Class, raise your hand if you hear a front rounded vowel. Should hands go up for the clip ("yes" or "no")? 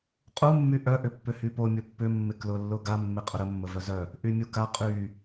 yes